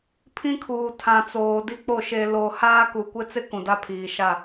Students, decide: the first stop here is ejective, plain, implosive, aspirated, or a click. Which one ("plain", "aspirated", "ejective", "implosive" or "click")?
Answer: aspirated